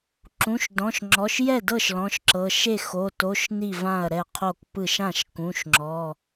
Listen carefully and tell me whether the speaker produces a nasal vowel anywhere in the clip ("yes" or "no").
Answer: yes